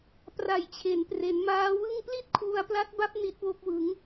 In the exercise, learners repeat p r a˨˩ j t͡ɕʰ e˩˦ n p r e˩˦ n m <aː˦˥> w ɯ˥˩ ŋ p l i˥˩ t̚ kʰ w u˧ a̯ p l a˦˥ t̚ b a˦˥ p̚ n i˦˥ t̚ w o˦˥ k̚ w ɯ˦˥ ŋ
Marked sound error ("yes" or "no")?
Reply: no